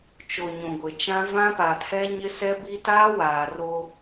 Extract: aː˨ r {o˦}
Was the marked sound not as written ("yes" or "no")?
no